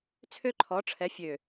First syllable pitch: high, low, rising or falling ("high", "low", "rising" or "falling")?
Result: high